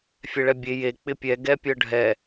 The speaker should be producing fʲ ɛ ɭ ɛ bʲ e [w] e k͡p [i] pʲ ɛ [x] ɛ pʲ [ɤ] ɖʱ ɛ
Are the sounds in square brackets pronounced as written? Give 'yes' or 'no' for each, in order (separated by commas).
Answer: no, no, no, yes